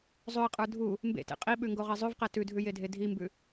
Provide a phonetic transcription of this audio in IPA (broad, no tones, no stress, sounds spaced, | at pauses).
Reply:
zˤ ʉ ɪ̯ qʼ ə˞ dʱ u | m b ḛ t ḛ qʼ i ɓ ʉ ŋ ɡ o ʁ e zˤ ʉ v q ɛ t ʉ dʱ ʉ j e dʱ e dʱ i m b ʉ